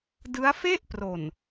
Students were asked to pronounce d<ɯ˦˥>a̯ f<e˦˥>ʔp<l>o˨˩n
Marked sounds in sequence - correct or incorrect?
correct, incorrect: e˥˩, incorrect: r

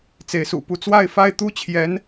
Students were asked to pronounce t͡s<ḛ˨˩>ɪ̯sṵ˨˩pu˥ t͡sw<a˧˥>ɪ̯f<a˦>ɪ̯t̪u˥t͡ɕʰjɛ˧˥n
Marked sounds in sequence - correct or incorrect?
incorrect: e˧˥, incorrect: a˥˧, incorrect: a˥˩

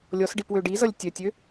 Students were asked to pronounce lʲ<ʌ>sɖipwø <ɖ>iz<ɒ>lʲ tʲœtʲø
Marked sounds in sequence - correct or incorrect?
incorrect: ɔ, correct, incorrect: ʌ

